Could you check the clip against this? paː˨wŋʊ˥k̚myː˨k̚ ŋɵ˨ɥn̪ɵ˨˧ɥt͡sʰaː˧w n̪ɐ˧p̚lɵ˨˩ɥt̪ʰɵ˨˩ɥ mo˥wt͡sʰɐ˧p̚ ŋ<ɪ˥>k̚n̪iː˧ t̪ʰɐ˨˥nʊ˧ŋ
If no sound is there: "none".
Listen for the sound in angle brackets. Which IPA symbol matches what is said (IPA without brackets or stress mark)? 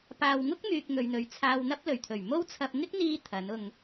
ɪ˥